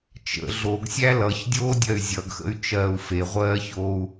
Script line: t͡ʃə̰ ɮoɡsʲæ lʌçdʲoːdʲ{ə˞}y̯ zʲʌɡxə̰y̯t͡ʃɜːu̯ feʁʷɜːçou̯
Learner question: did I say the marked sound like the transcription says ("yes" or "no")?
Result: no